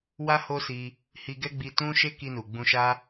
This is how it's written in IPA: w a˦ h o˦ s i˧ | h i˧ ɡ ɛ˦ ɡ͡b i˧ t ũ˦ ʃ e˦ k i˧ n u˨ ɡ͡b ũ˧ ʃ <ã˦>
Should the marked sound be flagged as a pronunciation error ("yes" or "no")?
yes